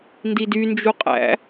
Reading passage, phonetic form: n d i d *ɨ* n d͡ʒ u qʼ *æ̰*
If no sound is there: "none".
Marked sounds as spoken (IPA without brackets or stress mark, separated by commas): y, æ̰